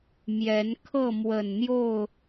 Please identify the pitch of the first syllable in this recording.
rising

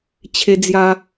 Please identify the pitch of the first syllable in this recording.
high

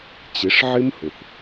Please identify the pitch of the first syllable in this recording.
rising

